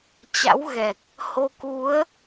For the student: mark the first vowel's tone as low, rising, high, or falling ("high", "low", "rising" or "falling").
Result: rising